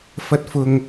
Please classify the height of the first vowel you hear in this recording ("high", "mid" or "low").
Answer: low